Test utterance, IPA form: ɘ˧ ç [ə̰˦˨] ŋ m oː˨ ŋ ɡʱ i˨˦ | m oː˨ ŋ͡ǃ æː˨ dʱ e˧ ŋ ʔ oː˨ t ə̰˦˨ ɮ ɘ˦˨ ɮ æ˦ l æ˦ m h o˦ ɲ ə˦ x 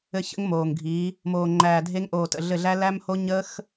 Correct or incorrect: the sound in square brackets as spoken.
incorrect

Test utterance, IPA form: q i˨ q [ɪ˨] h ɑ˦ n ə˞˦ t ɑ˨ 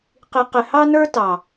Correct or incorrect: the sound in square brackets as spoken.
correct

